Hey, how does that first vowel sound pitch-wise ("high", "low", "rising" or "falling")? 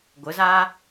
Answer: rising